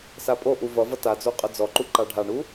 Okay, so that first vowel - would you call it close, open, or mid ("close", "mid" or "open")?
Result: open